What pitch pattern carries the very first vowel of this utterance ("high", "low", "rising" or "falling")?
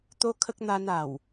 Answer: high